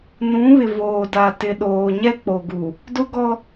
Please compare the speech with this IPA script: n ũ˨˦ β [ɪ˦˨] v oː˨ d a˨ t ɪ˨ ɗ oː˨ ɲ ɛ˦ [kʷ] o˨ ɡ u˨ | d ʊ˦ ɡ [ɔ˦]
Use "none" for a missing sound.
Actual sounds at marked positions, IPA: ɪ˨, k͡p, ɔ˦

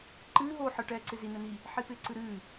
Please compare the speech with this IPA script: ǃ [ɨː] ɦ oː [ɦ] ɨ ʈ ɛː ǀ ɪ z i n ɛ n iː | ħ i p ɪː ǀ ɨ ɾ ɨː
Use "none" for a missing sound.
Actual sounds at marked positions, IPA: ɨː, ħ

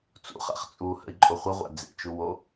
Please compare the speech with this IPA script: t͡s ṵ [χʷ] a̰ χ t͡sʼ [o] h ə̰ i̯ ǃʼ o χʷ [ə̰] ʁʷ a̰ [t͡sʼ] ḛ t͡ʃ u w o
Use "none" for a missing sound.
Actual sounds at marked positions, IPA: χ, u, ə, d͡z

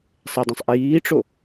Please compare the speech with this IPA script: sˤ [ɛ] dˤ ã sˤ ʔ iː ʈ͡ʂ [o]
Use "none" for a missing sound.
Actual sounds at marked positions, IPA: ɛ, o

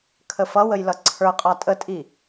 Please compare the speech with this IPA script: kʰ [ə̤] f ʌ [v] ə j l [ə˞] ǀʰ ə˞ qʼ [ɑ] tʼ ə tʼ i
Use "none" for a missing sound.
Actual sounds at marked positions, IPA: ə, w, ʌ, ɑ

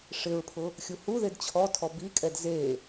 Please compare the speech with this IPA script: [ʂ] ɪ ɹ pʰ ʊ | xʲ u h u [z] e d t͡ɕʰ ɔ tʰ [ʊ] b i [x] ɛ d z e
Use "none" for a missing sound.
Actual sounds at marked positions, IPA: ʂ, ð, ɔ, kʼ

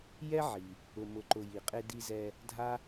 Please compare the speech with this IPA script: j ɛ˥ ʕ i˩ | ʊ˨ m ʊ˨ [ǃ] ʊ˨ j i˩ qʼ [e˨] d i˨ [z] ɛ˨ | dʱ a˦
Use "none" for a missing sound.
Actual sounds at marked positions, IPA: ǃ, e˨, z

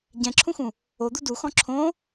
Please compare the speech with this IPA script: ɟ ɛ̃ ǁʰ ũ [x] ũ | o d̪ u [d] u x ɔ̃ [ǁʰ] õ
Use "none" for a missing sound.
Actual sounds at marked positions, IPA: x, d, ǁʰ

